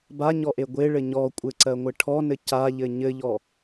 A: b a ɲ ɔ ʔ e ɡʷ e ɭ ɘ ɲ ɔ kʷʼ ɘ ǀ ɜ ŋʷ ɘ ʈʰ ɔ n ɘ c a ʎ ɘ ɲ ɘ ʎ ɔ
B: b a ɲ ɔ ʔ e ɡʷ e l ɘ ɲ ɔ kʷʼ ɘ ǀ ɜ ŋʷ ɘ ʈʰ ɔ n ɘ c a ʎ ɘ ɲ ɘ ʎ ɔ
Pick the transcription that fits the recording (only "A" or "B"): A